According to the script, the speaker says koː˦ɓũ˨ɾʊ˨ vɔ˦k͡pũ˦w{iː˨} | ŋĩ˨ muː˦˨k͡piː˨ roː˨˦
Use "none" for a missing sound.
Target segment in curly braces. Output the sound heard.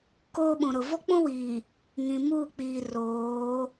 iː˨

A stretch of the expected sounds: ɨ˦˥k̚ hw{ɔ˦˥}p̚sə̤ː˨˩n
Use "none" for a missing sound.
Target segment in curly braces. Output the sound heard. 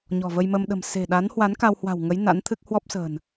ɔ˦˥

